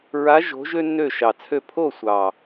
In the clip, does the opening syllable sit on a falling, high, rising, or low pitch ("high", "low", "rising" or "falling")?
rising